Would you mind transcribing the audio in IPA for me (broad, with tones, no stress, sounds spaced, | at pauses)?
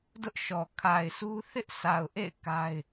d ʊ˦ ʔ ʃ ɔ˨ kʰ a˨ ɪ̯ s u˦ θ ɪ˦ ʔ sʰ a˨ ʊ̯ ʔ ḛ˦˨ ɪ̯ k a˦ ɪ̯